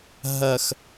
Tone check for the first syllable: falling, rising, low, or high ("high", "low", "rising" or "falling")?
low